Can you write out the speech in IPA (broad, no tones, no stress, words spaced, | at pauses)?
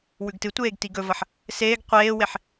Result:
wʉɡtɨtʷeːɡ tiɡɵvɐħ | seːɡ qʷeːweħ